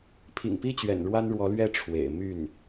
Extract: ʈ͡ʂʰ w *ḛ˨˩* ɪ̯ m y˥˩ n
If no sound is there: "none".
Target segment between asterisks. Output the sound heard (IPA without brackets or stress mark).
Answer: ḛ˨˩